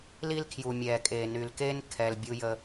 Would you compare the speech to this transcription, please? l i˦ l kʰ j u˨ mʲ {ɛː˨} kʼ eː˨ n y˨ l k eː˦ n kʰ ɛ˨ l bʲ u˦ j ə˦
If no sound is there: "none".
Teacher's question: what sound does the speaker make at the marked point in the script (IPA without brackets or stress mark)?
ɛː˨